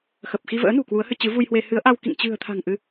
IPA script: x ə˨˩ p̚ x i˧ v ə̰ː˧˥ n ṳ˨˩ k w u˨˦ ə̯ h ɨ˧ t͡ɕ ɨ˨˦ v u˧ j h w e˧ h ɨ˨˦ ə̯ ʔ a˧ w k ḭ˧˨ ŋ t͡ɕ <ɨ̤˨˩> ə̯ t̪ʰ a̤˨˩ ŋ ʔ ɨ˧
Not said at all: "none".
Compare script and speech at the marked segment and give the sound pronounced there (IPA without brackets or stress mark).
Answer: ɨ̤˨˩